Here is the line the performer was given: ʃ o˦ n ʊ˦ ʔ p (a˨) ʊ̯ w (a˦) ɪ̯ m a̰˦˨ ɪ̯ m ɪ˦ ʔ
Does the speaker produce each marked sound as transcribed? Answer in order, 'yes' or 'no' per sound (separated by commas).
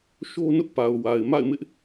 yes, no